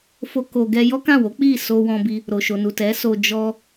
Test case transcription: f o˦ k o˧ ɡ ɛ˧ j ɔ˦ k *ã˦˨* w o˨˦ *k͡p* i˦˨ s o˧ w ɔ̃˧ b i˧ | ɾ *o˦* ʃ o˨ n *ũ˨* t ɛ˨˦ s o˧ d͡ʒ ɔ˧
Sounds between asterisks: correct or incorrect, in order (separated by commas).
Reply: correct, correct, incorrect, incorrect